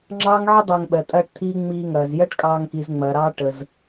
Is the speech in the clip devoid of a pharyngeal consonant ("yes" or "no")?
no